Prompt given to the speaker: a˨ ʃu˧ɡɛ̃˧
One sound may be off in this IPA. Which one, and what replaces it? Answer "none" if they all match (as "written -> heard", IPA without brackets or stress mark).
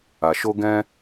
u˧ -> o˧